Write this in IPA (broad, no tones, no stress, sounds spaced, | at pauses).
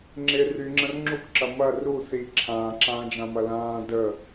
ŋ͡ǁ ɪ r y ŋ͡ǁ ɐ̃ r ŋ͡ǁ u kʷ ǁ ɐ m ɐ r u θ i ǁʰ ãː ǁ ãː d͡ʒ ã m ɐ l ãː d ə